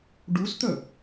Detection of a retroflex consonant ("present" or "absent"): present